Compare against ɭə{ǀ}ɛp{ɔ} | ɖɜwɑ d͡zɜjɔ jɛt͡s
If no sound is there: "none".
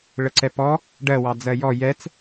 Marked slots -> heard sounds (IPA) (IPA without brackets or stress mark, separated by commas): ǀ, ɔ